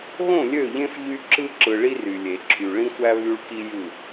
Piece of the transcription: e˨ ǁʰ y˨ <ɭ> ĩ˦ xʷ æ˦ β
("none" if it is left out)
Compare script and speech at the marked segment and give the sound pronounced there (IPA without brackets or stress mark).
ɭ